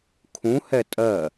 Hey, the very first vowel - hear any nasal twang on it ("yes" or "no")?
yes